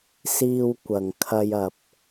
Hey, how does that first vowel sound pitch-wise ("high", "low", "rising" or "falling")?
high